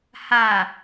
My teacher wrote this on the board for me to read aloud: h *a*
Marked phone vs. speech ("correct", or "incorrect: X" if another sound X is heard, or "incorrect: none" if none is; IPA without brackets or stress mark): correct